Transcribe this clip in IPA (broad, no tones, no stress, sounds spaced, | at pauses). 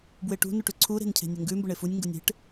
b w e ʈ ṳ n u ʈ ʉ ǀʰ u ɾ e̤ n cʰ e̤ nʲ ʊ ŋ ɡ ʉ m b ʊ ɳ e f u nʲ ŋ ɡ ʊ nʲ e̤ ʈ